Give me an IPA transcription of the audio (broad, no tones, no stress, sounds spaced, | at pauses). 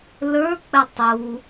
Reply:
l ə˞ k͡p ɛ tˤ u